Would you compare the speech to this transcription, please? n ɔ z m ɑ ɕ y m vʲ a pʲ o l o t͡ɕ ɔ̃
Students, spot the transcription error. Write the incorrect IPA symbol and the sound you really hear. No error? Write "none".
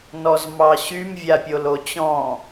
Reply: none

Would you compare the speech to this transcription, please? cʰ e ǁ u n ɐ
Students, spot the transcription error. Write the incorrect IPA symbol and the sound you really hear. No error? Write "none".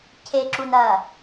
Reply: none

